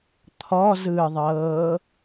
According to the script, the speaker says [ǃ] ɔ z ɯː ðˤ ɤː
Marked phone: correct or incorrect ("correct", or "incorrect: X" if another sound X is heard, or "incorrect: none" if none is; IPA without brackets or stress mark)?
incorrect: t̪ʰ